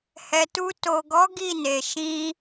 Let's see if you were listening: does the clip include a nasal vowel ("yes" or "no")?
yes